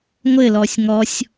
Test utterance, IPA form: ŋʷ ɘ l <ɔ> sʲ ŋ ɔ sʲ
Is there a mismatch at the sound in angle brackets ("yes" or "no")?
no